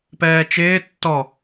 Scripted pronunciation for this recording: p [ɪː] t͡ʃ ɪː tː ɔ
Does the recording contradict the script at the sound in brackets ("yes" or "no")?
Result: yes